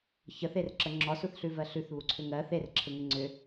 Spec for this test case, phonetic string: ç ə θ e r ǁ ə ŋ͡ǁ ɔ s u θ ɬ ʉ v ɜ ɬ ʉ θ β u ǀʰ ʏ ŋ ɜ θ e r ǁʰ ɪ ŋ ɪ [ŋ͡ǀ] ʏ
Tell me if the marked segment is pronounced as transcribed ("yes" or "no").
yes